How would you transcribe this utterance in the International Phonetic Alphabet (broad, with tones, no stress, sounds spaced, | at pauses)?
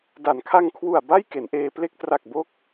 d a˩˦ n kʰ a˧ ŋ kʰ w u˨˩ a̯ b a˥˩ j k e˩˦ n ʔ eː˧ p l e˥˩ k̚ t r a˨˩ k̚ b o˦˥ k̚